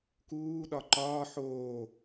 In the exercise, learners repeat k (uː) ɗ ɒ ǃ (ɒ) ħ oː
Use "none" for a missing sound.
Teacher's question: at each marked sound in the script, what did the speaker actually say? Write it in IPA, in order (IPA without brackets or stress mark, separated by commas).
uː, ɒː